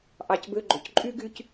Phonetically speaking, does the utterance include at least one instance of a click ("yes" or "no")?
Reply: yes